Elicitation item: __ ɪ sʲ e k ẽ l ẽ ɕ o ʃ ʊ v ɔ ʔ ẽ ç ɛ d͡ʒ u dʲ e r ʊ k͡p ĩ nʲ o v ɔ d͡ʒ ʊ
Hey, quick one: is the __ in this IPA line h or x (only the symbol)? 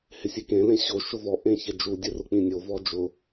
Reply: h